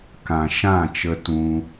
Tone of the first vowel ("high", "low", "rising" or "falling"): low